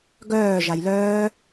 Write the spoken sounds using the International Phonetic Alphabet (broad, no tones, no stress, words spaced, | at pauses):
ɡœː ʒajlœː